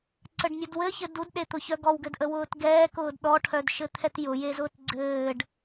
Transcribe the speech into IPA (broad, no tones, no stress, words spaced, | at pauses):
ǀəɖnʲudwɘçɘd udɗet̪ʊçœ ɡɔwɡɘdʔə wʊːtɡɛːkʊːd ɗɔʈʰœdʃɘ t̪ʰɛtjʊjezʊːt ɡ͡ǀɘːɖ